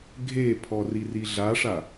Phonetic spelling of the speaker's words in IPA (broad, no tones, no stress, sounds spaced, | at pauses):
ɡʱ e pʰ ɔ r i r i ɮ a ʂ a